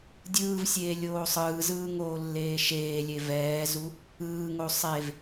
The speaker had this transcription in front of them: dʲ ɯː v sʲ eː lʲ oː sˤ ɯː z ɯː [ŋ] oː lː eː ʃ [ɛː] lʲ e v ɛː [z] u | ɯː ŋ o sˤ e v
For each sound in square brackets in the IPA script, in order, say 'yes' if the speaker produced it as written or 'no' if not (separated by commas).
yes, no, yes